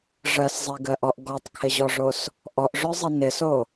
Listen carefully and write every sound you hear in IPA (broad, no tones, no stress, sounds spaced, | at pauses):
ʐ ɜ s zˤ e ɡ ɜ ʔ ɔ ʔ ɡ ɔ tˤ kʰ ɪ ʑ ɔ ʐ o s | ʔ ɔ ʔ ʐ ø zˤ i n ɪ s o